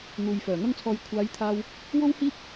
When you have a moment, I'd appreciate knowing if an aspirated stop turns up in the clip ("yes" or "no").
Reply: yes